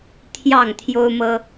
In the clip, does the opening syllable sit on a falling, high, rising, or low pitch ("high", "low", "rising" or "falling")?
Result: falling